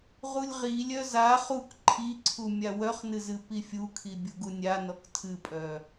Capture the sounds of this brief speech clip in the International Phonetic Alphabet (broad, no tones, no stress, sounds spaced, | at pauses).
ʁ u lʲ ʁ i lʲ œ z a χ u k ǃʰ i ǀʰ u mʲ a w œ χ n ɨ z ɨ p i fʲ u kʰ i bʲ u ɡ u nʲ a n ɔ k tʰ ɨ pʼ œ